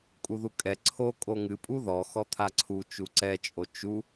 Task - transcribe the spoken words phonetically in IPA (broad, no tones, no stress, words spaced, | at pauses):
kʼuðukʼɛ ǀʰo kʼoŋɨ pʼuðɔ xɔt̪ʰaǀʰu t͡ʃuǀɛt͡ʃʼo t͡ʃu